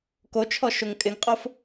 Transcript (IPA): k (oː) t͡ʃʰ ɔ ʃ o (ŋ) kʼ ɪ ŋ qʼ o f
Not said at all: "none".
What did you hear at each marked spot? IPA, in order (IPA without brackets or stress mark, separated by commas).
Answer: o, ŋ